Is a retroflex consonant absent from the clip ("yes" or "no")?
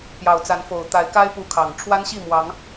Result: no